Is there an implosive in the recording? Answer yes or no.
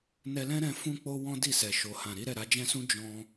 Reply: no